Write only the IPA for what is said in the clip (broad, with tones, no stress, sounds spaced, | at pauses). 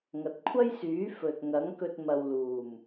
ŋ ɐ˨ t̚ kʷʰ ɐ˥ j s yː˨˥ f ɵ˨ t̚ ŋ ɐ˨˥ ŋ k ɵ˧ t̚ m ɐ˨ w l uː˨˩ m